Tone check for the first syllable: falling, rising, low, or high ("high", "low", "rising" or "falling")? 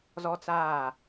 high